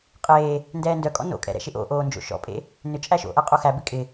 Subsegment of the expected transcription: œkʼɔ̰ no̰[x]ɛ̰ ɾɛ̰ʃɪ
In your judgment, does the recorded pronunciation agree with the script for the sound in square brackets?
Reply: no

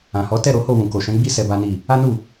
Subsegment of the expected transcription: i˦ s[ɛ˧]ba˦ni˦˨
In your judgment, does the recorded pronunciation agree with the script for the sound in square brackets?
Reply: yes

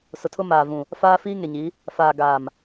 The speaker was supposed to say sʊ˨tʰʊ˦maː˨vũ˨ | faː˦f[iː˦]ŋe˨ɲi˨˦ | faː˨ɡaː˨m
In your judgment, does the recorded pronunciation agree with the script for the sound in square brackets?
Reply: yes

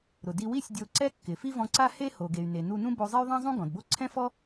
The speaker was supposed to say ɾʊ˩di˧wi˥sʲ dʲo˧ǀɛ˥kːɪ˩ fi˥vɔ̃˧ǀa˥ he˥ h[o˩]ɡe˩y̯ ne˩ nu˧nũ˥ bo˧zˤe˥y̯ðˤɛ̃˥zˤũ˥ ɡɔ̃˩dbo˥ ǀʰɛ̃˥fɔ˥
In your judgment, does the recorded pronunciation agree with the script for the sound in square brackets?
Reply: yes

